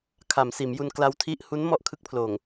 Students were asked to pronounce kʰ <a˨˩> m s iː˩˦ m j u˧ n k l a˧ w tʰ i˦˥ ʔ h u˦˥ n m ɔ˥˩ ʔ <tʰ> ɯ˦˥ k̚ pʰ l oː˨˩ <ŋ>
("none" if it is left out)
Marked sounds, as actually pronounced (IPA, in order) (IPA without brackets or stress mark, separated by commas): a˩˦, kʰ, ŋ